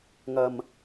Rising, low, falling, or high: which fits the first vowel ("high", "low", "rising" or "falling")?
low